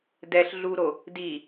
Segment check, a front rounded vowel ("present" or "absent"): absent